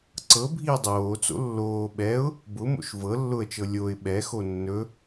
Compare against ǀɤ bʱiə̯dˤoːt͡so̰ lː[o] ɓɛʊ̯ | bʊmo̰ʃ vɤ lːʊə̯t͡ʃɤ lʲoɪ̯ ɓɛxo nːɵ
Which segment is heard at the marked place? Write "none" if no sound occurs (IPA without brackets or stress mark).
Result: oː